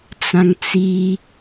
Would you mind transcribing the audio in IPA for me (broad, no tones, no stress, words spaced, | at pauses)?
t͡sãŋt͡si